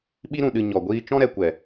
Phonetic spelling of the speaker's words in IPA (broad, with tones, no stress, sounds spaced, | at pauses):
ɓ i˧ ɾ ũ˨ ɗ ɨ˨ ɲ ɔ˨ ɡʷ iː˧ t͡ʃ ɔ̃˧ ɾ ɛ˨ kʷ ɛ˨